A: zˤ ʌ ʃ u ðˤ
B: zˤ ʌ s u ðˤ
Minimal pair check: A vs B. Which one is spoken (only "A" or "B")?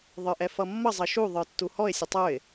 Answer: A